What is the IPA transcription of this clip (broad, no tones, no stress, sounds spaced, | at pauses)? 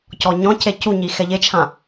c ɔ ɲ ɔ̃ c e c u ɲ i x ɛ ʎ e t͡ʃʰ ã